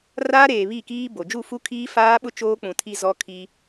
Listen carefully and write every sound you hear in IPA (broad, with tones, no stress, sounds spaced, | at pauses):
r aː˦ ɾ eː˨ β i˦˨ k iː˦ b o˨ d͡ʒ u˦˨ f u˦ kʰ iː˦ f aː˦ ɓ ʊ˦ t͡ʃ oː˦ k͡p ũ˨ tʰ i˦ z ɔ˦ kʰ i˦